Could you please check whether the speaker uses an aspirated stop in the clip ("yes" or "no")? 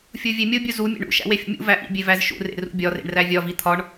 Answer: yes